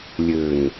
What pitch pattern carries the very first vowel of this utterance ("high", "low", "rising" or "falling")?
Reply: low